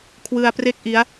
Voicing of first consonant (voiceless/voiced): voiceless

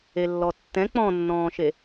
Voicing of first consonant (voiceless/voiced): voiced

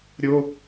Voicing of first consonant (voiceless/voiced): voiced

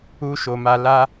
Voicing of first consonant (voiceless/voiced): voiceless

